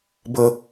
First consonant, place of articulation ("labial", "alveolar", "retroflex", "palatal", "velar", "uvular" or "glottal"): labial